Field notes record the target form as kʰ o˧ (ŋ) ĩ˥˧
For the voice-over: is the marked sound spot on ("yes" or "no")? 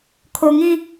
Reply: yes